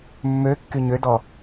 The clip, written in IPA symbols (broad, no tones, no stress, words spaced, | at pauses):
mːø kːyɲødɔ